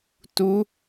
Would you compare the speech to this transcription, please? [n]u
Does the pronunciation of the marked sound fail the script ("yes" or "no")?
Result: yes